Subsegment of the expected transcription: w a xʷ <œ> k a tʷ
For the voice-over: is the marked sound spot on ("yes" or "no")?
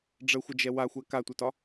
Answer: no